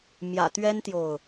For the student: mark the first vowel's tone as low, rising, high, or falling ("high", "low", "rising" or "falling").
low